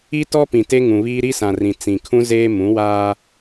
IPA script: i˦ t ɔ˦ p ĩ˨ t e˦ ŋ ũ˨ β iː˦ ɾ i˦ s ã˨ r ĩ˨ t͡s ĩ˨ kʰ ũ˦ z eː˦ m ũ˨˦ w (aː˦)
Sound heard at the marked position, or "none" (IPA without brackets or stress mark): aː˦